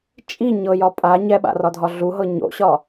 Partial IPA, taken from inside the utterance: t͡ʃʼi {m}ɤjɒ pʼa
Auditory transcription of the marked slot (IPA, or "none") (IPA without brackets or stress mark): ɲ